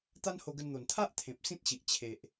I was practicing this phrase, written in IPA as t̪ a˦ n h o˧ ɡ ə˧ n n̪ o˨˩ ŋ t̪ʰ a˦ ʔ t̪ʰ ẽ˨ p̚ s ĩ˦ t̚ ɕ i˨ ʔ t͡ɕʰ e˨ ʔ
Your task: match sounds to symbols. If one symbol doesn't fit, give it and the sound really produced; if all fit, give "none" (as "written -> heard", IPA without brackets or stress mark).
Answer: ŋ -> n